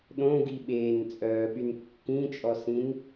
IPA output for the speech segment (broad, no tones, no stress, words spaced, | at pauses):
ɗõɡi ɓeːnt͡sʼœːɓyn kːĩt͡ʃʼɔsĩn